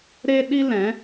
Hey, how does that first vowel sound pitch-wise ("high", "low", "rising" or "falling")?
high